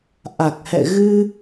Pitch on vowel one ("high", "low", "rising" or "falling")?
low